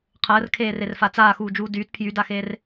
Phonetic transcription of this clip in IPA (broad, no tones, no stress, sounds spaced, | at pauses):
qʰ əː r kʰ eː r e r f a t͡s aː x uː d͡ʒ uː d yː t pʰ j y d a x eː r